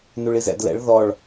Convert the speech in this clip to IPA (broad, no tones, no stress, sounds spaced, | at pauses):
n u ɭ i z ɛ̰ d l ɛ̰ ɭ ð ɔ ɭ